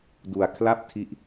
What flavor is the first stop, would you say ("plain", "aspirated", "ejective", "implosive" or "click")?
plain